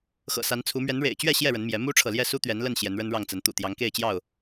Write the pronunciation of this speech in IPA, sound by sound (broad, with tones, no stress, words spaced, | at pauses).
xɤ̰˨˩sa˨˦nt͡sʰu˨˦ mɥɛ˨˦nɻḛ˨˩ɪ̯t͡ɕɥɛ˥˨ ɕjɛ˥˨ɻə˨˦nmjɛ˨˦ mu˦ʈ͡ʂʰɤ˨ljɛ˥˨ su˦t̪ɥɛ˨˦nlə˥˨n ɕjɛ˨˦nɻə˦nɻɑ˥˨ŋt͡sə˨˦n t̪ṵ˨˩t̪jɑ˨˦ŋke˥˨ɪ̯ t͡ɕjɑ˥˨ʊ̯